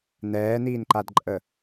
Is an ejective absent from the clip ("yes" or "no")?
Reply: no